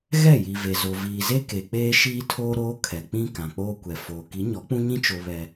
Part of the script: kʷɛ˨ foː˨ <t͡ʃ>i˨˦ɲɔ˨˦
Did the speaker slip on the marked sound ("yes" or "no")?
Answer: yes